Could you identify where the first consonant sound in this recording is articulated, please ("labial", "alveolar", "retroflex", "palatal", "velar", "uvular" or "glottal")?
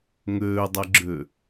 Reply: velar